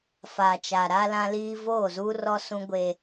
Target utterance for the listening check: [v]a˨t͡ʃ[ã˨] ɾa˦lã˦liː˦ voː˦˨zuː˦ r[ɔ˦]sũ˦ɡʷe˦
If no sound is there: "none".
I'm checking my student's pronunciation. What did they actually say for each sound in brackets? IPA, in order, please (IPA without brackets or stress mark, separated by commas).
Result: f, a˨, ɔ˦